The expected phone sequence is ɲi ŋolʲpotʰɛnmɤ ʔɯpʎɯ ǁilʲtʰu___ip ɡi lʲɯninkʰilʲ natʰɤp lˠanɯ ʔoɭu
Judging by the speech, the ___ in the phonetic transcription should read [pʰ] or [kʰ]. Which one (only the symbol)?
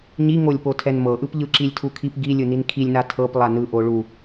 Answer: kʰ